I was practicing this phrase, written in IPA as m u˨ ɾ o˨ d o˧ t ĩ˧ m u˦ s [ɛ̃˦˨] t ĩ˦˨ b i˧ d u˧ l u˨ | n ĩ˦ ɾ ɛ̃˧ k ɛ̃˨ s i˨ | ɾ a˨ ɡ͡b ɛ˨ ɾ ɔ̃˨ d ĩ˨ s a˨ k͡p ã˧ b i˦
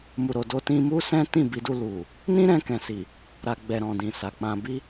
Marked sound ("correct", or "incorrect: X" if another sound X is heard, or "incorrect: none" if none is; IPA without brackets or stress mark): incorrect: ɛ̃˦